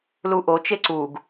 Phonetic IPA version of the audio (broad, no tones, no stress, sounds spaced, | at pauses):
l u ʔ o t͡ʃ e ǀ u ɡ